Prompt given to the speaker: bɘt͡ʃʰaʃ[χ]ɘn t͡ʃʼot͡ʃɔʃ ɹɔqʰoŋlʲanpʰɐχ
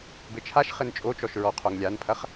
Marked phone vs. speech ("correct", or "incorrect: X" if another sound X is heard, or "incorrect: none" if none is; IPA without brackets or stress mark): correct